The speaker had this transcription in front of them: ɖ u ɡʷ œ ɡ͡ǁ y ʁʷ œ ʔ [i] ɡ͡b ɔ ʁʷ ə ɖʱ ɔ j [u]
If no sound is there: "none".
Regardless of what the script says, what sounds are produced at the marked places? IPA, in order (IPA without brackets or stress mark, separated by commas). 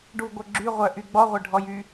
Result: y, y